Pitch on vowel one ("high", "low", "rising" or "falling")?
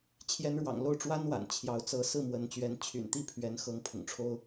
rising